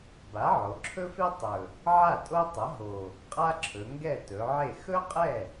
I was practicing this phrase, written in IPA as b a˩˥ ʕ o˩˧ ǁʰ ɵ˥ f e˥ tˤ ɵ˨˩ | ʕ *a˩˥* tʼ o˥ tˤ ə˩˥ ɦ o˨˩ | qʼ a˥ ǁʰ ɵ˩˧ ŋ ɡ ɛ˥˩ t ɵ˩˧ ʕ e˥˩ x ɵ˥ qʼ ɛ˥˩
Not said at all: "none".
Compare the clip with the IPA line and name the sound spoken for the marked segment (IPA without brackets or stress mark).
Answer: a˥˩